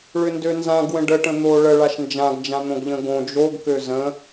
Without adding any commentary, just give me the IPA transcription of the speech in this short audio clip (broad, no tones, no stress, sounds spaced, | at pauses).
ɭ ʏ n d ø n z ã ɡ w ə̃ ɖ ə ʈ ə̃ n̪ o ɭ ə ɭ a ʃ n d͡ʒ ã ɡ d͡ʒ ã n̪ õ ɡ ʎ ə̃ ɡ õ d͡ʒ o ɡ k ø z ə̃